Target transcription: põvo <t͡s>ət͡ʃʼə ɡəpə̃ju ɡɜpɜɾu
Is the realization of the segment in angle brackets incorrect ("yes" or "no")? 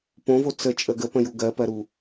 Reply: no